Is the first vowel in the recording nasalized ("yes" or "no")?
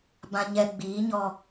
yes